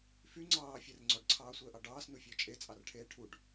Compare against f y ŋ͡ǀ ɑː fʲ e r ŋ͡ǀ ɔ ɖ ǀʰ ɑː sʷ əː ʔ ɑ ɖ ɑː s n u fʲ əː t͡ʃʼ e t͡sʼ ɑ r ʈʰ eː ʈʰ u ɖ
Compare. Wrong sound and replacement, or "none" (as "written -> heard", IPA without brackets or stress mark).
none